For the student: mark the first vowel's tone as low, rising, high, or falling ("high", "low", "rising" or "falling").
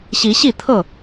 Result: rising